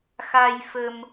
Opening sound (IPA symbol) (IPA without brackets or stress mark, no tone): x